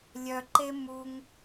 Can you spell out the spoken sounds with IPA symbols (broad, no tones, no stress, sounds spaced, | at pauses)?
lʲ œ ǃ e m u ŋ